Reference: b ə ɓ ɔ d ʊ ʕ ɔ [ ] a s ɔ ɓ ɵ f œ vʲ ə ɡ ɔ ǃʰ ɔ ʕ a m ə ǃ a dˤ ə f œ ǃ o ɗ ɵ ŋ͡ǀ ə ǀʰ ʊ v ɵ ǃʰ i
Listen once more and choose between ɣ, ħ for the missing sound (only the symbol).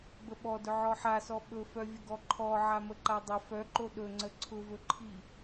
ħ